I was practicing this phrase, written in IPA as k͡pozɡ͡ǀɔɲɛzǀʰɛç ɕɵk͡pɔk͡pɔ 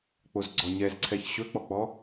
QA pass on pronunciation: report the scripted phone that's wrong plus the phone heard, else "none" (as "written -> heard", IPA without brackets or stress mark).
none